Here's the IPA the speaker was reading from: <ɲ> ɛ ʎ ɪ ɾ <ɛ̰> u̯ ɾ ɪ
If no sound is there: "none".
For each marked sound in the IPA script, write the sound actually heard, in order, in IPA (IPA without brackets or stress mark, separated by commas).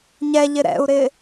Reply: ɲ, ɛ̰